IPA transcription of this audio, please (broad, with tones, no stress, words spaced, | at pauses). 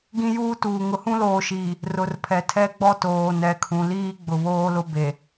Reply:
ɡĩ˦juː˦tuː˨ ŋʊ˨hũ˦loː˨ʃiː˨ | rʊ˨rpʰɛ˨tʰɛ˦ ɡ͡bɔ˦toː˨ nɛ˨kʰũ˨liː˦ ɡ͡bʊ˨βoː˦lʊ˦be˨